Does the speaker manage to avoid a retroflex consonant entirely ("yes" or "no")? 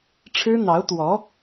no